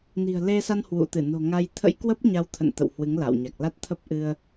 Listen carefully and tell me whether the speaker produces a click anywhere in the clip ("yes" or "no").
no